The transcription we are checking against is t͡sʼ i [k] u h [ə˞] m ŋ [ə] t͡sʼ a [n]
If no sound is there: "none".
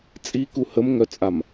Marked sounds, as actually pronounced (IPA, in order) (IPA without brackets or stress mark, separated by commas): k, ə, œ, m